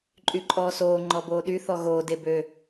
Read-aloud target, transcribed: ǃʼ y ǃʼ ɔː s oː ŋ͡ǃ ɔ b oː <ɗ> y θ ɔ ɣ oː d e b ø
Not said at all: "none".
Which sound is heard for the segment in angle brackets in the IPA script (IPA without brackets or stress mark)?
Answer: ɗ